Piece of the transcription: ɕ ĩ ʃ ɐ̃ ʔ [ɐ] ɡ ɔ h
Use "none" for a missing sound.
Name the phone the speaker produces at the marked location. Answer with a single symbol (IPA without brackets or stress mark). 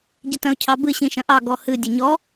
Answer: ɑ